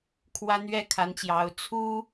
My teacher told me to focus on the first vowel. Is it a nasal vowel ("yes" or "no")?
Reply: no